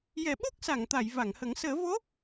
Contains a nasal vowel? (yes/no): no